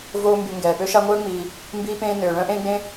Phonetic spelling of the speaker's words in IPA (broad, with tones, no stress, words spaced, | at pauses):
voː˦mby˨ ŋɡɛː˩pø˦ ʃa˦ŋʷœː˥ŋ͡miː˨ | mbiː˦pẽː˦ nøː˩ ɭœ̃˦ʔẽː˦ɡ͡bẽ˦